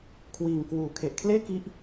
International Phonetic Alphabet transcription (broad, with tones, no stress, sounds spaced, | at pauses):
kʰ w iː˧ ŋ k w uː˧ kʰ e˨˩ ʔ kʰ l eː˥˩ k i˦˥ ʔ